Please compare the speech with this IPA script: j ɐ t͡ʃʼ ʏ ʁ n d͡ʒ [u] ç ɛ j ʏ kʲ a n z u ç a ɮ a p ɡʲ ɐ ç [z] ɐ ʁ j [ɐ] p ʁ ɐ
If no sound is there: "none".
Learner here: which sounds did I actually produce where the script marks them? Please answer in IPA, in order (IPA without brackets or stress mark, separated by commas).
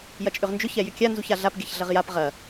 ʏ, ɮ, a